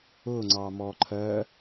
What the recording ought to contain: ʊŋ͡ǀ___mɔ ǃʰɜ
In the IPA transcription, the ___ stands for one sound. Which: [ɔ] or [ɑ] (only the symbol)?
ɑ